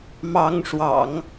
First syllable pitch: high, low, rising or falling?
rising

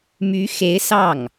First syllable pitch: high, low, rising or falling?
rising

